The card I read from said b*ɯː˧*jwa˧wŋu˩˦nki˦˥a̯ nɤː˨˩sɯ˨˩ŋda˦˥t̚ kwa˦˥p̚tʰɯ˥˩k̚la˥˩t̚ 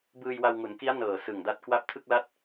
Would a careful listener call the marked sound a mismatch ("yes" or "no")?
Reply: no